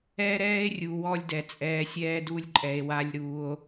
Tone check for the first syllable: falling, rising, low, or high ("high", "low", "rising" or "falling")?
high